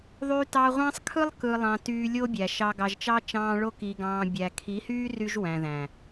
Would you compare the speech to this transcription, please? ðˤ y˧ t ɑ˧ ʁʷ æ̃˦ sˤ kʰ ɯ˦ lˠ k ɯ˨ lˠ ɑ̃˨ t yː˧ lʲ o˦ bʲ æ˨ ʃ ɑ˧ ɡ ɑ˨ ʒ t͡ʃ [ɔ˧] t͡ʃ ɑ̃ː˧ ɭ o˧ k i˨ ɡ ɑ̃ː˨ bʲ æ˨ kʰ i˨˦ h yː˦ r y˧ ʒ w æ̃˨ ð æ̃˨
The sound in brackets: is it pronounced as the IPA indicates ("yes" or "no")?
no